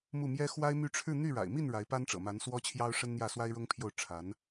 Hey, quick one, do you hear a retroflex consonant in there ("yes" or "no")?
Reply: yes